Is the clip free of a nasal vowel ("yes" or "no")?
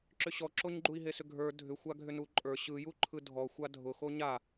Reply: yes